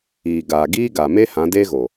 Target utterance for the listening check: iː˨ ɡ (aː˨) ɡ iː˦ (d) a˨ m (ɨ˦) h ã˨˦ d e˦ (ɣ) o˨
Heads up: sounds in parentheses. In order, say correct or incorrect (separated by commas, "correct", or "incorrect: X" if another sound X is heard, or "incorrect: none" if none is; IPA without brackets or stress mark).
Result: correct, incorrect: ɡ, incorrect: e˦, correct